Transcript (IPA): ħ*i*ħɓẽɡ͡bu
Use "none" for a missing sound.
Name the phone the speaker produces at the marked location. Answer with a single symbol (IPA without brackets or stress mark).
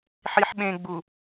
i